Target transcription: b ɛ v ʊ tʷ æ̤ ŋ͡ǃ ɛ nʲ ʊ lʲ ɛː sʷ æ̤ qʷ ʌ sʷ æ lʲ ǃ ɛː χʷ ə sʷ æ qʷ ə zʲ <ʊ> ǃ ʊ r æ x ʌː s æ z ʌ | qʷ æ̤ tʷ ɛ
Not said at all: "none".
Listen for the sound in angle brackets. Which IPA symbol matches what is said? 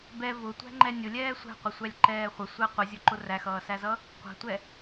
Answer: ʊ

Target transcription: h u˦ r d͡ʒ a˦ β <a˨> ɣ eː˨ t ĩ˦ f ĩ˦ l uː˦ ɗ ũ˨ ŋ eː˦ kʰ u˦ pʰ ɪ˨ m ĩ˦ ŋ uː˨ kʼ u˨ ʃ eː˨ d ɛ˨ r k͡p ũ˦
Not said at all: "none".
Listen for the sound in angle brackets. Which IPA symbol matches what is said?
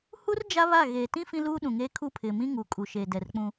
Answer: a˦˨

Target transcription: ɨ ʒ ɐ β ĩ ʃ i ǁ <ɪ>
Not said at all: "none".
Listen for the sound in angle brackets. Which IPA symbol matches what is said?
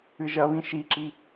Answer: i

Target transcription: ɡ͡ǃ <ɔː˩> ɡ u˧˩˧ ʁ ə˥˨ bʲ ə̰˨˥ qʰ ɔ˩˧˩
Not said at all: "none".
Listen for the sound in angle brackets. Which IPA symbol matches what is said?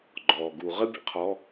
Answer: ɔː˩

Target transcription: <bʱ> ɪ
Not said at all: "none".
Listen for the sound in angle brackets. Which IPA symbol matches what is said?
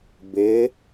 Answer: b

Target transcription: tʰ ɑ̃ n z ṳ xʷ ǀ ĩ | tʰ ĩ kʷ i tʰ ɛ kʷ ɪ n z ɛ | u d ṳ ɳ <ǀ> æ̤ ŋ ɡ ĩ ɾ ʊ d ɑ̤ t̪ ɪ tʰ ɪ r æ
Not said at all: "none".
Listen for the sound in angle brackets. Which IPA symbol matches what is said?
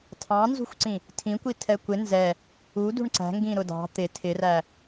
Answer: ǀ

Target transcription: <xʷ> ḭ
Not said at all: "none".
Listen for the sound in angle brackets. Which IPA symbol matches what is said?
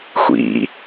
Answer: xʷ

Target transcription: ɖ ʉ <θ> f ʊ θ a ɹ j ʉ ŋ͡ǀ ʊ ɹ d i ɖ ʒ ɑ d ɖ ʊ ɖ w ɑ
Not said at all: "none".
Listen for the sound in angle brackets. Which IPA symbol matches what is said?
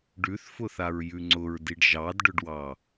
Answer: θ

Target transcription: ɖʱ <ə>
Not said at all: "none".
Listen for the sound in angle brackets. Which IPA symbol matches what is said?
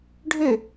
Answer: ø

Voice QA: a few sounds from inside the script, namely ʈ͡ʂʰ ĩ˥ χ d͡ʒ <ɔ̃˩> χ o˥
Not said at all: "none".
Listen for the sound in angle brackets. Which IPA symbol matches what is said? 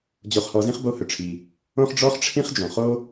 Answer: ɔ̃˩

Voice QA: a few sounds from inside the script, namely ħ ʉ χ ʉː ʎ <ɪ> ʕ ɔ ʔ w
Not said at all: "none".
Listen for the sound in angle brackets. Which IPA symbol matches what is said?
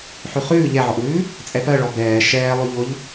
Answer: ɛ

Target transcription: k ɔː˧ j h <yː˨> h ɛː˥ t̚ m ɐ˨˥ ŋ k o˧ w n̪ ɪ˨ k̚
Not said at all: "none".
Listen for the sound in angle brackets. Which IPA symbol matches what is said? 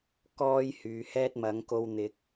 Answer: yː˨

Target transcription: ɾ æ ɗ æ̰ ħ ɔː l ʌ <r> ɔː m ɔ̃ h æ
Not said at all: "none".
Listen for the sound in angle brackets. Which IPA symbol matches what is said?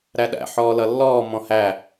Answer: lː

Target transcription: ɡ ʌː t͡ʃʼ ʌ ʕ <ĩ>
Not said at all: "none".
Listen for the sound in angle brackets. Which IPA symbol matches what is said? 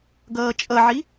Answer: i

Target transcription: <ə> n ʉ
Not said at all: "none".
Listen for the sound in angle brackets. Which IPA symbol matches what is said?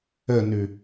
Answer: ə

